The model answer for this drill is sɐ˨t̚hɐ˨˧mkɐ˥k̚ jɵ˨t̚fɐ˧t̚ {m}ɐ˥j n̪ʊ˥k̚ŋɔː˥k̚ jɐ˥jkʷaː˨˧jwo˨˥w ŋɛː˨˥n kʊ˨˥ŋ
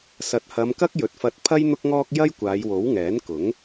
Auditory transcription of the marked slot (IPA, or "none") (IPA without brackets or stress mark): pʰ